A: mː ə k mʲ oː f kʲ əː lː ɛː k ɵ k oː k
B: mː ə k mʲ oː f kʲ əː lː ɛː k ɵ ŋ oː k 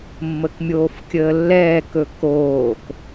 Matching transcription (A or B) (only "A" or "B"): A